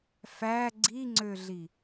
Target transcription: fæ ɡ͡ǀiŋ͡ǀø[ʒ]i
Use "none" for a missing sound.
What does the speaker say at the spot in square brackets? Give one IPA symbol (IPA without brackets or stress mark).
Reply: ɮ